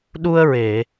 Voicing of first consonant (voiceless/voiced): voiced